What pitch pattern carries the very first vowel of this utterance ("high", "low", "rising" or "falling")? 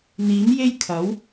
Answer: rising